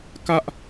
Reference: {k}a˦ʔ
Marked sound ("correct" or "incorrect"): correct